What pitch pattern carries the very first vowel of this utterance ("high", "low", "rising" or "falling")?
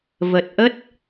low